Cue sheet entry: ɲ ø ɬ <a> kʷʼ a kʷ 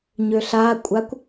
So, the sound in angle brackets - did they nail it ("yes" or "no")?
yes